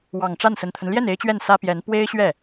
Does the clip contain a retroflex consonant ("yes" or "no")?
yes